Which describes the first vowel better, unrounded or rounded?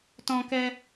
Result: rounded